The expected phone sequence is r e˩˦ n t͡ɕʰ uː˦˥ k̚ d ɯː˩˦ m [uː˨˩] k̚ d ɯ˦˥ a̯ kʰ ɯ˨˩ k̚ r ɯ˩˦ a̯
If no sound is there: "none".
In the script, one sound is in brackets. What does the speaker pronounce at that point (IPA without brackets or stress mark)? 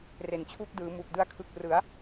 uː˨˩